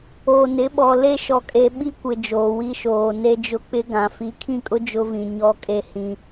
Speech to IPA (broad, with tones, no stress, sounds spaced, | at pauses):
oː˨ n ɪ˨˦ ɓ ɔ˨ l e˦ ʃ ɔ˨ kʼ e˨ ɓ i˦ kʷ ɪ˨ d͡ʒ oː˨ w i˦ ʃ oː˨ n e˦ d͡ʒ ʊ˦ k͡p ɪ˦ ɡ ã˨ f i˨˦ kʰ ĩ˦˨ kʼ ʊ˦ d͡ʒ ʊ˦ v ĩ˨ ɲ ɔ˦ kʼ e˦ h ĩ˦